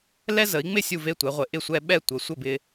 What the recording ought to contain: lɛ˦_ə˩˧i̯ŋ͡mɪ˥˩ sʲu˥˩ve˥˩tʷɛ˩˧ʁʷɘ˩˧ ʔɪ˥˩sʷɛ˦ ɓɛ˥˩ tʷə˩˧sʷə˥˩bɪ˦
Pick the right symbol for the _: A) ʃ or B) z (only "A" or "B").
B